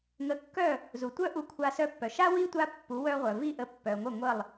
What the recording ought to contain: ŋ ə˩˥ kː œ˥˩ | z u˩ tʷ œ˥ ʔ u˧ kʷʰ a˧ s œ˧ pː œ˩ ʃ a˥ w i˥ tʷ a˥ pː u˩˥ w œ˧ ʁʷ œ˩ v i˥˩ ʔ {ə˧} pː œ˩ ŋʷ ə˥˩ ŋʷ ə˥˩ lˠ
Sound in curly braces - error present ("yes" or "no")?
no